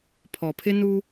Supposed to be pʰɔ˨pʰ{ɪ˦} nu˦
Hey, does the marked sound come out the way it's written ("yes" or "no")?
yes